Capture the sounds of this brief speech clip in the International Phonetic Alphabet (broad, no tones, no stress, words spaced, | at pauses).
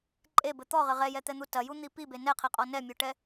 ǃʼebɘ t̪ɔʁɘ ʁɛjɛt̪ɛn̪u tɐjun̪i pibe nɛqʰɛqʼɔ nɛmʲoʈɛ